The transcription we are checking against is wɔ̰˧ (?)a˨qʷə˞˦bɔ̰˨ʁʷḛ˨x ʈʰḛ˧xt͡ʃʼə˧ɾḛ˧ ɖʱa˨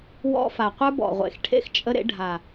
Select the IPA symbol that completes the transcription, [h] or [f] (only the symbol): f